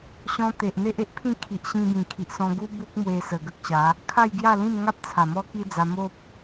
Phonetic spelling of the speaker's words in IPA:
ɕ ɔ̃˧ t̪ e˨ ʔ n̪ e˦ ʔ e˦ ʔ pʰ ĩ˥˧ kʰ i˨ ʔ ɕ ĩ˧ b ĩ˨˩ kʰ i˨ ʔ s ɔ̃˧ ɡ u˦ b u˦ k̚ m w e˧ s ə˨˩ ɡ ə˦ k̚ ɕ a˨˦ | kʰ a˥˧ j ɡ j a˥˧ l ĩ˥˧ m ŋ a˦ p̚ t͡sʰ a˨˩ m ɔ˦ k i˦ d͡z a˧ m o˦ p̚

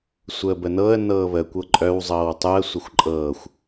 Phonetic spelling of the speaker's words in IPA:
sʷ əː b ə n ɤ ə̯ n ɤː β ə kʷ ɤ ǃʼ œ w zˤ ɤː w tˤ u ə̯ sʷ ə xʷ ǃʼ ɤː xʷ

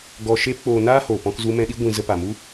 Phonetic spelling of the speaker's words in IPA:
ɡ ɔ˧ ʃ eː˦ p k͡p oː˧ n aː˦ h oː˨ p ɔ̃˧ k z u˧ m ɛ̃˧ ɗ i˦ ɡʷ ĩ˧ z ə˧ p a˨ m u˦

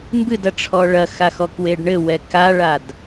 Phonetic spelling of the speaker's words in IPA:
m b ɨ d ɐ ʈ͡ʂʰ ɔ ɭ ɐ x a x ɔ k w e ɖ ɳ ɘ w ɛ k a ɭ a d

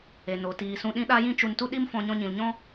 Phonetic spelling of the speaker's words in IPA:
e˨ n o˨ t iː˨ s ũ˧ ɗ ĩ˦ ɗ a˦ j ĩ˦ t͡ʃ u˧ n t u˦ ɗ i˦ m f ɔ̃˧ ɲ ɔ̃˧ ɲ ĩ˨ l ɲ ɔ̃˦

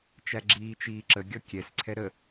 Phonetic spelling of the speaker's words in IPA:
t͡ʃ æ ɡ͡ǁ iː t͡ʃ iː ǁ ə ɡʲ ɔ kʲ ɛ s ǀʰ ɛ ɾ ə

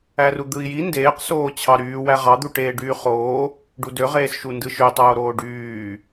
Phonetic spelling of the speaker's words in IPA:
æ r u d̪ ɯ i̯ j i n d eː q s oː t͡ɕʰ ɑ ɾ yː w æ ʁ ɑ d̪ u ʈ eː ɖ yː χ oː | ɖ u d ø ʁ eː s ʃ u n d ɯ ʃ ø tˤ oː ɾ oː ɖ yː

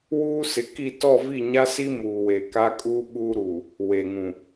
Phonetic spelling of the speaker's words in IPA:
w uː˦ s ɪ˨ k i˦˨ t ɔ˦˨ v i˦˨ ɲ a˦ s i˦ m uː˨ w e˨ k a˦ kʼ uː˦ ɓ uː˦ ɾ u˨ | w e˨ ŋ ũ˨

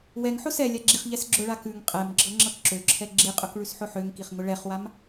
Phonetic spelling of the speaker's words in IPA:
w ɛ ŋ ħ ʊ s ɛ lʲ a ɡ͡ǁ i χ ʎ ɛ s ɡ͡ǁ ʊ ɭ a k ʉ ŋ qʼ ɛ m ɡ͡ǁ ɤ ŋ͡ǁ ɤ k ǁ ø ǁʰ ɛ ɡ͡ǁ i qʼ ʊ k ɭ ʉ s ħ ʊ ħ ø ŋ k i χ ŋ ʊ ɭ ɛ χ w a m

